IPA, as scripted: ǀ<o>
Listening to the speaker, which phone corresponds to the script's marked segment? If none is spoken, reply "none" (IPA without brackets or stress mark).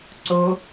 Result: o